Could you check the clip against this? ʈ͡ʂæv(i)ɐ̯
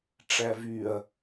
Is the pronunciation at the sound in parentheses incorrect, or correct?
incorrect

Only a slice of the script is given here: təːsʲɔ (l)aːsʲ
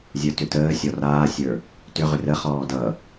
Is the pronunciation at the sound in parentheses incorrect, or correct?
incorrect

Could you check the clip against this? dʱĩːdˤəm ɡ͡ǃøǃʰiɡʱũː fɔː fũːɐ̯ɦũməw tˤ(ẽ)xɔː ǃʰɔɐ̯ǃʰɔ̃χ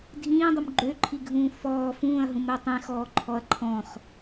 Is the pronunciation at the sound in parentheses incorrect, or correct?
correct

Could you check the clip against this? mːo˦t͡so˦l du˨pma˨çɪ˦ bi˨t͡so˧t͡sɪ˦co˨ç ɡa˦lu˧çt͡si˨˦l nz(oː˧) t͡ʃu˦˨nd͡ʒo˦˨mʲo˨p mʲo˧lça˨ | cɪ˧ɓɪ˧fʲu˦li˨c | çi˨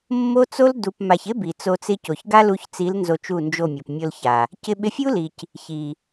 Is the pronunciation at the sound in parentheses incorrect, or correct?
incorrect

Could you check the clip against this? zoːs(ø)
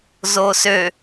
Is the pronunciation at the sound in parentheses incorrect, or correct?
correct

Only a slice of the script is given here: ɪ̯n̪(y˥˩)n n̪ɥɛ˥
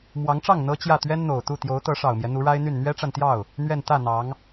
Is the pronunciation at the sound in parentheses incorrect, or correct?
correct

